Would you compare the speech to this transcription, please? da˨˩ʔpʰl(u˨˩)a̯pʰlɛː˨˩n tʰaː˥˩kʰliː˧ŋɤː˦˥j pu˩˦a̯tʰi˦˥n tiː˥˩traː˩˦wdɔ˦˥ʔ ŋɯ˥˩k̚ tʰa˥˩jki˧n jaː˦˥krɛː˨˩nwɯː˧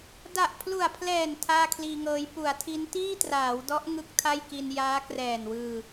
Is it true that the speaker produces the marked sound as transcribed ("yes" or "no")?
yes